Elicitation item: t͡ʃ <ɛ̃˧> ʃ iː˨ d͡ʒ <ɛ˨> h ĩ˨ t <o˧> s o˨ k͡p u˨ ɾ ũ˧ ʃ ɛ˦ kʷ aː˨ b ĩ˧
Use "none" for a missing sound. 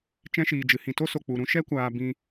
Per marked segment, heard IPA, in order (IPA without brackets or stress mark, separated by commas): ɛ̃˦, ɨ˨, o˦